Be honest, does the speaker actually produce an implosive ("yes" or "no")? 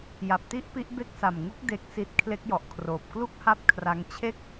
no